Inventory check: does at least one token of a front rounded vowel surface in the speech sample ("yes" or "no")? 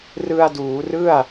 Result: no